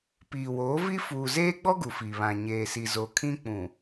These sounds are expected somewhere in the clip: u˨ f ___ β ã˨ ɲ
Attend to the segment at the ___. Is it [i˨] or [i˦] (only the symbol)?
i˨